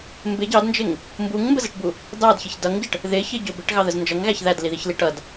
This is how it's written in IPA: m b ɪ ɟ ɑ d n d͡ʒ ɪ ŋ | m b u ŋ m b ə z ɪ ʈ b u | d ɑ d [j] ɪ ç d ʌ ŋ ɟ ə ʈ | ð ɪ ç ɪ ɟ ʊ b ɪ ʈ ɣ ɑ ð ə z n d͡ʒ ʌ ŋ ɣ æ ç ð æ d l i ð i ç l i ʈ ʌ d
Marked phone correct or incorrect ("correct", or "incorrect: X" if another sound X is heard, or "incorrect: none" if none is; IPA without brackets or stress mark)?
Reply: incorrect: ç